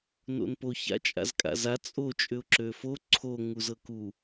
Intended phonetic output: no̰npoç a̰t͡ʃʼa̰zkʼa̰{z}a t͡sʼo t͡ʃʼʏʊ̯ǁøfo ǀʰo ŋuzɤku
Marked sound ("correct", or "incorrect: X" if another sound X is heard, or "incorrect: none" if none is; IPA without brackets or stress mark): correct